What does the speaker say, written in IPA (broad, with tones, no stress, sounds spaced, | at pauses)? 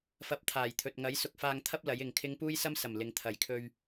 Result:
f ɐ˧ p̚ t̪ʰ aː˨˩ j t̪ʰ ɵ˨ t̚ ŋ ɐ˨˥ j s ʊ˧ k̚ f aː˧ ŋ t̪ʰ ɐ˥ p̚ l ɐ˨˥ j ɪ˨ ŋ kʰ ɪ˥ ŋ p uː˥ j s ɐ˥ m s ɐ˨˩ m l ɪ˨ ŋ t̪ʰ ɐ˨˩ j kʰ ɵ˧ ɥ